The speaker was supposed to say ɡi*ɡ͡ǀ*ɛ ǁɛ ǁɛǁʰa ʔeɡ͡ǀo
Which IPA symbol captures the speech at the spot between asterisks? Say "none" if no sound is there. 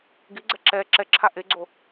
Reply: ɡ͡ǀ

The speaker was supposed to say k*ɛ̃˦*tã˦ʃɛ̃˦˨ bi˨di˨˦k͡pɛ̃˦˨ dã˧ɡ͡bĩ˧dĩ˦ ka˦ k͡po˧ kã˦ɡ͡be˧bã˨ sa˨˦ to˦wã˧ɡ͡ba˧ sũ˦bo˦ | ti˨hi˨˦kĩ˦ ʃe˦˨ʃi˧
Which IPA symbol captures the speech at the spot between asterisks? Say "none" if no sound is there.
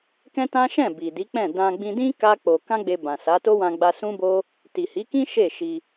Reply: ɛ̃˦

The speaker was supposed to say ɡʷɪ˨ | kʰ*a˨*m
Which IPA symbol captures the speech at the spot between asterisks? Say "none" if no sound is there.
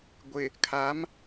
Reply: a˨˦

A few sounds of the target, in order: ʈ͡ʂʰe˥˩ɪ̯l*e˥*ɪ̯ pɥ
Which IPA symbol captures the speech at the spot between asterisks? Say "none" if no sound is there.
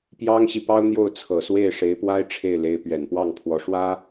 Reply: e˧˥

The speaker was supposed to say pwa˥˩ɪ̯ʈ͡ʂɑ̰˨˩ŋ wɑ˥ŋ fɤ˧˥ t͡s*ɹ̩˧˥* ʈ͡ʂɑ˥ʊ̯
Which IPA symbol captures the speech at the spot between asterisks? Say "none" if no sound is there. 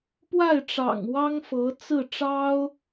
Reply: ɹ̩˥˩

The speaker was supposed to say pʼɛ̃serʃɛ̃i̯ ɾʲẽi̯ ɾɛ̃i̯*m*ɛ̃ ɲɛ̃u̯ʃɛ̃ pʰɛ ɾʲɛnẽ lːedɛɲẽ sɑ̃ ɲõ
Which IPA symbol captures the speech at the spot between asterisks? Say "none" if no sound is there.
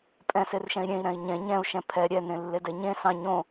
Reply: ɲ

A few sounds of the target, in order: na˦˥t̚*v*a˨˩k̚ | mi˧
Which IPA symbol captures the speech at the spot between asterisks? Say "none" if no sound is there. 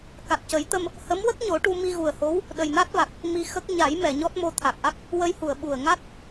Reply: v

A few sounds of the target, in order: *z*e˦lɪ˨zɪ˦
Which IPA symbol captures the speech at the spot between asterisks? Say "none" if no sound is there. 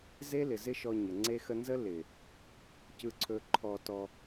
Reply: z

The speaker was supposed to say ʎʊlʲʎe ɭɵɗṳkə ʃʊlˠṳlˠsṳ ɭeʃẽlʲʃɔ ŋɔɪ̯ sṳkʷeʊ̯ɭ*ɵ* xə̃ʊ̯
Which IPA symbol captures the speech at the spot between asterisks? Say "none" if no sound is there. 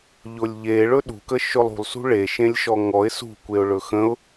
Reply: ɵ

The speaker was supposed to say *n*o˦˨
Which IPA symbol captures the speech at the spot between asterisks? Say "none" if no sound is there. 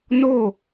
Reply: n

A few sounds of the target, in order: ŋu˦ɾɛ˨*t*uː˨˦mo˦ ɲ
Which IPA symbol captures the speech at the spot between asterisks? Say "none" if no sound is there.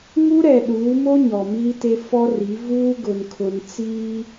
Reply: ɗ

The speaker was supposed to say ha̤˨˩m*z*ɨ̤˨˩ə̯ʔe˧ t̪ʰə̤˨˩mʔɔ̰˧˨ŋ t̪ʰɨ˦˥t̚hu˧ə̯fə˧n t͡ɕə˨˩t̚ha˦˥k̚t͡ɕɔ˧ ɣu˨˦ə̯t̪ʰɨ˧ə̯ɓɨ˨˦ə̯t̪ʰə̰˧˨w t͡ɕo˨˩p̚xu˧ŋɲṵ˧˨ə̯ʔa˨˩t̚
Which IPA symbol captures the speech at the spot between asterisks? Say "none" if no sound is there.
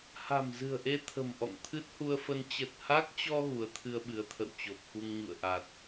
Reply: z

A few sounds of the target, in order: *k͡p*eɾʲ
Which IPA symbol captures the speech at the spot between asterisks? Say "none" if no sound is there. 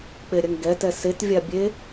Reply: k͡p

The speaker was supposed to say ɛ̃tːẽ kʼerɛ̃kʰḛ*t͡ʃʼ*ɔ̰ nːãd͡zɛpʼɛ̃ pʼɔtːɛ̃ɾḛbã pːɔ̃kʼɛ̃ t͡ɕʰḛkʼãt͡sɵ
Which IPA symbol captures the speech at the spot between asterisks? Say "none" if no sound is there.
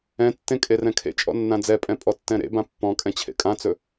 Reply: t͡ʃʼ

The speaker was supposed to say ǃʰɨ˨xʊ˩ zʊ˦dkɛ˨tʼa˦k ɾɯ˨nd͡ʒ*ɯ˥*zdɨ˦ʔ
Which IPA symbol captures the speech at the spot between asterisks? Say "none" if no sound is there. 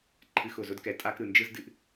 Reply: ɯ˥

